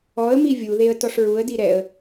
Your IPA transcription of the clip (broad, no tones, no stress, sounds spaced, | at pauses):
ɔ ə̯ m i vʲ u ð e ə̯ t ɔ ʂ ɹ u ə̯ d i ɾ ɛ ə̯